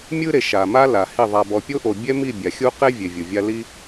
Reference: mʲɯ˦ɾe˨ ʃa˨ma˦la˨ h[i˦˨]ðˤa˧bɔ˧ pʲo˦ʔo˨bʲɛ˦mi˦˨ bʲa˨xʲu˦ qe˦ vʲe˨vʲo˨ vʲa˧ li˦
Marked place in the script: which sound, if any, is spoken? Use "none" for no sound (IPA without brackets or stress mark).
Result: i˦˨